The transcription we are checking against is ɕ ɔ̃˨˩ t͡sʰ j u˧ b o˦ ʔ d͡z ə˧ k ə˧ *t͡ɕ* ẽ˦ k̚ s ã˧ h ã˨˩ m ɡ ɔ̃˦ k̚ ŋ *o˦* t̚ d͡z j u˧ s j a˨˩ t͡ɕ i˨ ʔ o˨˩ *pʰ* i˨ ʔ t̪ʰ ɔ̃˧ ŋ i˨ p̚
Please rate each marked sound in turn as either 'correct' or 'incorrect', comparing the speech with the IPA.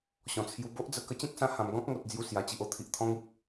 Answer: correct, incorrect: o˨, incorrect: t̪ʰ

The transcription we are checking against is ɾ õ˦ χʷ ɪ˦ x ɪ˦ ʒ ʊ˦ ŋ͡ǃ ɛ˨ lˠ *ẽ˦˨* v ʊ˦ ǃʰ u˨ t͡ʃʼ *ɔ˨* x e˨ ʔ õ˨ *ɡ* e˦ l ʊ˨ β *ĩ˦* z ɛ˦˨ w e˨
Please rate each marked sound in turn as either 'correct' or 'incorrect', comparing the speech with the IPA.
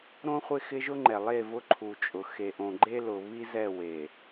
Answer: incorrect: e˦˨, incorrect: ʊ˨, incorrect: ɡ͡ǃ, incorrect: i˦

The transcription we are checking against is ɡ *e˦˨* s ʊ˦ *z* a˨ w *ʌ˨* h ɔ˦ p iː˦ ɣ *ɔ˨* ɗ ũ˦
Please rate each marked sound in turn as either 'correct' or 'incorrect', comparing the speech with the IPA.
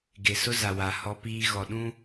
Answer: incorrect: e˨, correct, incorrect: a˨, correct

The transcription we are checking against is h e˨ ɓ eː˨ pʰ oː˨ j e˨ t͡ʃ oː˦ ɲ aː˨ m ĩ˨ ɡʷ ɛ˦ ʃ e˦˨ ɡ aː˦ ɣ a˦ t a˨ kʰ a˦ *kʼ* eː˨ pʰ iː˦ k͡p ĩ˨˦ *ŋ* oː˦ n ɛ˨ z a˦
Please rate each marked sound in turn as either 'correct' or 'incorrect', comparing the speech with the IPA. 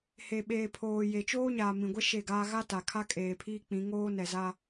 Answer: correct, correct

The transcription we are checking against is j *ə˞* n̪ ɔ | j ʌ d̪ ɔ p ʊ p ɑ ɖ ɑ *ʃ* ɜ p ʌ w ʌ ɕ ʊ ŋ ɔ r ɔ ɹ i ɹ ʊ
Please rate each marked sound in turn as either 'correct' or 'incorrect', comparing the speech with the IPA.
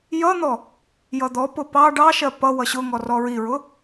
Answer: incorrect: ʌ, correct

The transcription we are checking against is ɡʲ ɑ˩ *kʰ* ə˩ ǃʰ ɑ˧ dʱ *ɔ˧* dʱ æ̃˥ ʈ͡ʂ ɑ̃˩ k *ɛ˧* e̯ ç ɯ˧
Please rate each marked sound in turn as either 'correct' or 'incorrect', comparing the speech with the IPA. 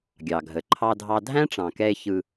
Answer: incorrect: ɡʱ, incorrect: ɑ˧, correct

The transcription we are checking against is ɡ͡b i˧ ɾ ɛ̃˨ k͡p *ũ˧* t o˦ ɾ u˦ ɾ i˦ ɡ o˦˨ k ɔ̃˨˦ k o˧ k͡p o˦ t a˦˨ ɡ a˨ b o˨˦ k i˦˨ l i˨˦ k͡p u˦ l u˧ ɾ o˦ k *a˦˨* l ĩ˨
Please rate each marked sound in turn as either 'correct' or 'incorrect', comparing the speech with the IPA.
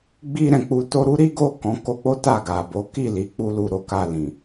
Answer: incorrect: u˧, incorrect: a˧

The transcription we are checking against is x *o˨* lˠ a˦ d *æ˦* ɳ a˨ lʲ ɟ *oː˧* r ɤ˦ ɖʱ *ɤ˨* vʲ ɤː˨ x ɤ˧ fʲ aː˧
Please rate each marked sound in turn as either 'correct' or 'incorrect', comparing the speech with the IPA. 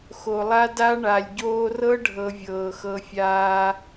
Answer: correct, incorrect: a˦, correct, incorrect: ɤ˧

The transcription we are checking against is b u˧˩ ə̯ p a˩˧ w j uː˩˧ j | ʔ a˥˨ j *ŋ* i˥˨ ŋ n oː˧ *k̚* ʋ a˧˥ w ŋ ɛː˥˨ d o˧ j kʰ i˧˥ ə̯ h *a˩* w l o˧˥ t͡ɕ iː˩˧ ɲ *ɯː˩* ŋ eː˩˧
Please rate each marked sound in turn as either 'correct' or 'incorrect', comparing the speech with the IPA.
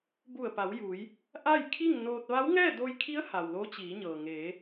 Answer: incorrect: kʰ, incorrect: t̚, correct, incorrect: ɤː˩

